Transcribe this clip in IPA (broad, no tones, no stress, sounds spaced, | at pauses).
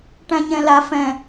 ʈ æ̃ ɲ ɛ̃ l a f ɛ̃